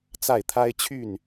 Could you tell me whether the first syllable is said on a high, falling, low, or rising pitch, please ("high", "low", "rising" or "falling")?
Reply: falling